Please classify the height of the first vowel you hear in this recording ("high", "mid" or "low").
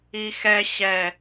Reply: high